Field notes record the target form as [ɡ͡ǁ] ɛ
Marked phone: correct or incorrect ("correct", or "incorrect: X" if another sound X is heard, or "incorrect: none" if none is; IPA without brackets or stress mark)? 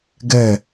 incorrect: ɡ